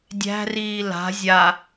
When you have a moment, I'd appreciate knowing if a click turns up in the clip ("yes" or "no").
no